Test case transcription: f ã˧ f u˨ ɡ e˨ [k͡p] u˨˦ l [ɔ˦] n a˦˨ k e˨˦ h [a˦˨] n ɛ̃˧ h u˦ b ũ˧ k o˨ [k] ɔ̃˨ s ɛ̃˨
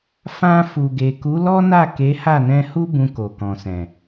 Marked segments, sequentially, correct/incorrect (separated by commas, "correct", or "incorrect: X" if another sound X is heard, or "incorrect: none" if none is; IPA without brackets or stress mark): incorrect: k, correct, correct, correct